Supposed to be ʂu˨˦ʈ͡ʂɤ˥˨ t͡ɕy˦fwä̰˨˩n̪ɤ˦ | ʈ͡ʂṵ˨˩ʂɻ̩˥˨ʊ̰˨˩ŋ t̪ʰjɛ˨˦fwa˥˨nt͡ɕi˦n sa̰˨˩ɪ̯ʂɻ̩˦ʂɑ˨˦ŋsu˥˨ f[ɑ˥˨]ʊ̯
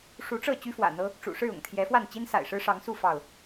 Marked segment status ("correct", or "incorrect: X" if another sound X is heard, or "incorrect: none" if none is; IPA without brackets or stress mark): correct